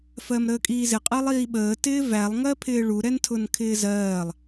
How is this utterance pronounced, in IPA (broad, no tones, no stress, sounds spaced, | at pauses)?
f ɜ m ɾ əː kʼ iː z ɪ qʼ ɜ lˠ iː ɓ əː t ɪː v æ lˠ ŋ ɜ pʰ ɪː ɭ u ɾ ɛ n tʰ ʊ n kʰ ɪː z ɜː lˠ